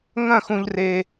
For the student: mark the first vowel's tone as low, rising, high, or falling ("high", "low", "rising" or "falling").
falling